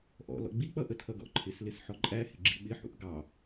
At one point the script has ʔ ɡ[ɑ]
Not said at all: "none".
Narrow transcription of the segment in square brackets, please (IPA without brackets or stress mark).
ɑ